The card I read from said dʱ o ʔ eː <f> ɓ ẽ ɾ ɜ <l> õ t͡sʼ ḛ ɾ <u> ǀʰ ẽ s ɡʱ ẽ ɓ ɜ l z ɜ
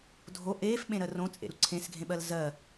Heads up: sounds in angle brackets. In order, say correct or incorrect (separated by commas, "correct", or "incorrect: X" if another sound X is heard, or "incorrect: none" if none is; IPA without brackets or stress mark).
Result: correct, incorrect: r, correct